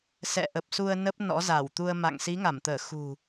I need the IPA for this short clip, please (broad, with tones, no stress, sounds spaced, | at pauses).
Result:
s ɛ̰˧˨ ʔ ə˨˩ p̚ s u˧ ə̯ n ə˦˥ p̚ n ɔ̰˧˥ z a˧˩ w t̪ u˧ ə̯ m a̰˧˨ ŋ s i˨˦ ŋ a˧˩ m t̪ əː˧˩ x ṳ˨˩